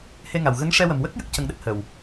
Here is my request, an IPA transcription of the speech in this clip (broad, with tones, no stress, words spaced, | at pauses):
he˧ŋa˨˩w ɣə˧˥ŋʂɛ˧wə˨˩m wə˦˥k̚ jə˦˥k̚ cə˧ŋɗə˦˥k̚ hə˨˩w